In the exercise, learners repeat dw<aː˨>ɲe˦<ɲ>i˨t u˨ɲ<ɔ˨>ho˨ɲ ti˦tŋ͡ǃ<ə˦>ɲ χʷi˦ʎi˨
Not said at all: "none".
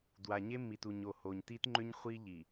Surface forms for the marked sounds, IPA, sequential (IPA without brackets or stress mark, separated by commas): a˨, mː, o˨, ʏ˦